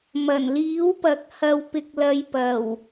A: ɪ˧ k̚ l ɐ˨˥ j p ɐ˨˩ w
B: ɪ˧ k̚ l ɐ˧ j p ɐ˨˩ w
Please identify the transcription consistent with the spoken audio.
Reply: B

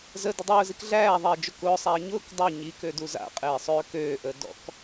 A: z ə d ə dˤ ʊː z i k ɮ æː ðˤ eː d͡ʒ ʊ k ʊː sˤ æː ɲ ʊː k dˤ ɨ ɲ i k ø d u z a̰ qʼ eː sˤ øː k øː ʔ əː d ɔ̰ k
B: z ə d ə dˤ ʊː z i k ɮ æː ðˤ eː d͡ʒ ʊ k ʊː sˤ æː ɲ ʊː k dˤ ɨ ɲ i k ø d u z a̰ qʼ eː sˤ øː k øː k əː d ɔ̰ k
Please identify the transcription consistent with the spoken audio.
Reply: A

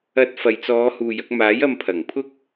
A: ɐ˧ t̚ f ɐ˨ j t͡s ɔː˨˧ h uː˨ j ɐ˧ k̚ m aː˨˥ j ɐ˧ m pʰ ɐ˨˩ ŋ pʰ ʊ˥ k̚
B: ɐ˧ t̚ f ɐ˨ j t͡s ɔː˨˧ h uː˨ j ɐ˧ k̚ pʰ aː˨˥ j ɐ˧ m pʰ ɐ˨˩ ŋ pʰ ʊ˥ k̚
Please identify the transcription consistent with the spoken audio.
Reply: A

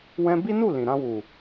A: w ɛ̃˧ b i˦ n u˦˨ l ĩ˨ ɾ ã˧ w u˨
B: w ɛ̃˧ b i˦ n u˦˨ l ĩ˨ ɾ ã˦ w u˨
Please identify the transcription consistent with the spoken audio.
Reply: A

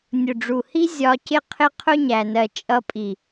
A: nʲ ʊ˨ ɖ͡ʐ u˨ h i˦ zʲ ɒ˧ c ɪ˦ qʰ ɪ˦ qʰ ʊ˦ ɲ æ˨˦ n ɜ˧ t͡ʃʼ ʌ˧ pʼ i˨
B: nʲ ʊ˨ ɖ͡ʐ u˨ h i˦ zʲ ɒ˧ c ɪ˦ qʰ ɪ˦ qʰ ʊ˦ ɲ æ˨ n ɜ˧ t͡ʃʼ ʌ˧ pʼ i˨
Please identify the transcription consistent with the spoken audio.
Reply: B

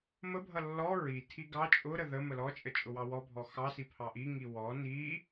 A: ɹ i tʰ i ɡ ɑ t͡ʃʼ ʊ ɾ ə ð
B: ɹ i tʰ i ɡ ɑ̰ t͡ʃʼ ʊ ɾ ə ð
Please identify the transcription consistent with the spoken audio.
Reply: A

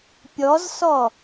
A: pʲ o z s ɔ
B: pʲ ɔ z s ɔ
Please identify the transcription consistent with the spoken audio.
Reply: B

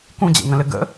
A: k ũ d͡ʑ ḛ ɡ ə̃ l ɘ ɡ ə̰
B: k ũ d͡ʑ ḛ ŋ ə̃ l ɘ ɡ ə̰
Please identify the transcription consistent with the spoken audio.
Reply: B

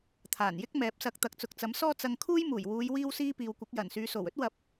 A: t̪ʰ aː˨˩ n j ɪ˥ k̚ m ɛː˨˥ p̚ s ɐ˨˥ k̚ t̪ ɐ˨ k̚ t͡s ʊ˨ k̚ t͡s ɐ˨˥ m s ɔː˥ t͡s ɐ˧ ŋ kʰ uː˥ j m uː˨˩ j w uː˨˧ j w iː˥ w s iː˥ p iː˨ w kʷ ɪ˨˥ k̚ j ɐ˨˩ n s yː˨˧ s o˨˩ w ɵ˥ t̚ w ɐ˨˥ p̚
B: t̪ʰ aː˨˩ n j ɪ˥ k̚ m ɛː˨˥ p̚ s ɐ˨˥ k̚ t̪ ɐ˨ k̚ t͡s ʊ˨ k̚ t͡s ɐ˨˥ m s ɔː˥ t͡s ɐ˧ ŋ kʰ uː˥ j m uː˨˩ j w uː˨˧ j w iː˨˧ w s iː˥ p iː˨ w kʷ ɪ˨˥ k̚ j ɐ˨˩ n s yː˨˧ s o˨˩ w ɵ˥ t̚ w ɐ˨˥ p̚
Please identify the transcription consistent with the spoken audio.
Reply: A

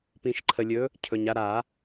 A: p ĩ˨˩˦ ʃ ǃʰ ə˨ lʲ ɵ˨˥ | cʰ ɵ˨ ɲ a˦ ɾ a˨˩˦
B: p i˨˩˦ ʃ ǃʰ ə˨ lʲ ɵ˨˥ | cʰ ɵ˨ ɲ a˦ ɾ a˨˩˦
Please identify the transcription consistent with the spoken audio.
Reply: A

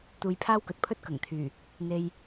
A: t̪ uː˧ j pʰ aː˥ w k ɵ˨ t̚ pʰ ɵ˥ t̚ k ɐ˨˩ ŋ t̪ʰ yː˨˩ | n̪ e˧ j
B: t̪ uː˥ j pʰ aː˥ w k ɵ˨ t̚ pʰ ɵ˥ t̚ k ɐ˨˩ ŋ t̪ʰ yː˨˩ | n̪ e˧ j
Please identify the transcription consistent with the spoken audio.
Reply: A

